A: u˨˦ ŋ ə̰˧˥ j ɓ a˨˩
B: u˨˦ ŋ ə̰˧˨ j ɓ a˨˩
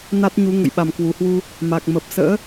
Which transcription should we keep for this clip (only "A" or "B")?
B